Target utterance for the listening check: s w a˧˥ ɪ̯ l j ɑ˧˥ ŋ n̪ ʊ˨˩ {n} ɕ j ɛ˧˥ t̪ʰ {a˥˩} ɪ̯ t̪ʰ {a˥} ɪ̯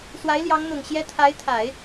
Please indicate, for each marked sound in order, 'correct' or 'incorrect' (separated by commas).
incorrect, incorrect, incorrect